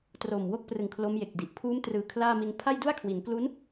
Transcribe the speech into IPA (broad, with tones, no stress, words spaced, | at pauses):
tro˨˩m wo˥˩k̚prɯ˨˩ŋ kʰlo˦˥mje˨˩k̚di˨˩ʔ pʰuː˦˥mtrɯː˨˩ kʰlaː˥˩mi˧n pʰa˥˩jdu˥˩a̯kʰwi˩˦nklu˦˥n